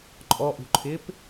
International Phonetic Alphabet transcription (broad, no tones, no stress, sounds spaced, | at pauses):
ǃʼ ɔ ʔ ṳ ǃʰ ɪː p